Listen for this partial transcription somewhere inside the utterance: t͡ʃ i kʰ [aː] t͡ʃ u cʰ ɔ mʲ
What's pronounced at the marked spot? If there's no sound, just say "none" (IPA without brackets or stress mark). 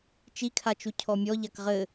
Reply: a